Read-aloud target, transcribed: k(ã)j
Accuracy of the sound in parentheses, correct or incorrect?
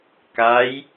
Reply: incorrect: a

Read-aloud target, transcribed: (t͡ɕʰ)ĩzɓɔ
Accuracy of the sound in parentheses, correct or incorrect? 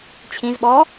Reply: correct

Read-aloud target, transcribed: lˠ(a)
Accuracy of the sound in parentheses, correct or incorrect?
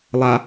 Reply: correct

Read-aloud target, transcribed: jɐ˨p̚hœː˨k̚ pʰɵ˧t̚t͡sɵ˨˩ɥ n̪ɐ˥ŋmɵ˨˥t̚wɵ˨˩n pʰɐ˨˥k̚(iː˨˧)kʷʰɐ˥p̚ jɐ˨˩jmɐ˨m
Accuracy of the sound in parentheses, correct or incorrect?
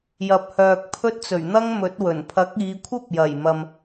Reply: correct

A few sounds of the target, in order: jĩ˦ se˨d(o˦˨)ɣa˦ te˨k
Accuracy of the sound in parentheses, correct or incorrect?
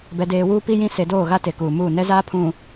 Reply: incorrect: oː˦˨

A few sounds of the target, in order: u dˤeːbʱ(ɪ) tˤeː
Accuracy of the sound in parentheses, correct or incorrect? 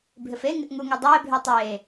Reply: incorrect: ɪː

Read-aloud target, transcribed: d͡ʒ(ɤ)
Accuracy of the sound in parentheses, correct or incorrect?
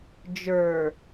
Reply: incorrect: ə˞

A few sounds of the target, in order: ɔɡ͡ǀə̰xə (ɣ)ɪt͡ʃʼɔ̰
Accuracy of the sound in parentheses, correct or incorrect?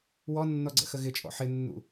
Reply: correct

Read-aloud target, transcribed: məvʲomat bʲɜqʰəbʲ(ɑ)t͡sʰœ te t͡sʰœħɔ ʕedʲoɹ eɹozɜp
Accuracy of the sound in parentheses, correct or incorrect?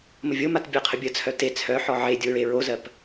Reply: incorrect: ə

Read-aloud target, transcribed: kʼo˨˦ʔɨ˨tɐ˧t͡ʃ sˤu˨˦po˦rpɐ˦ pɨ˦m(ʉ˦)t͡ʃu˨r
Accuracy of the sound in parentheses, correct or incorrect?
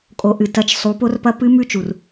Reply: correct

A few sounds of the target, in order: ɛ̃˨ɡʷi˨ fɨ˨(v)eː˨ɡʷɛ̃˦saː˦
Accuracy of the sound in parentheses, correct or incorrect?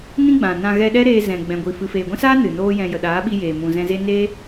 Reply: incorrect: f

